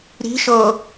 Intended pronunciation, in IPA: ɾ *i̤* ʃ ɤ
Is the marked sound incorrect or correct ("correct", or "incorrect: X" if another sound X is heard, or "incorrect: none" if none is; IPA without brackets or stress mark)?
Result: correct